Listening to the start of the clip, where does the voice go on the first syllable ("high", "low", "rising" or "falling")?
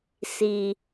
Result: low